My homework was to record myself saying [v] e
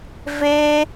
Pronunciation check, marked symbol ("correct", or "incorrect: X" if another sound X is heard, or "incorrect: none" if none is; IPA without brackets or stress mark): correct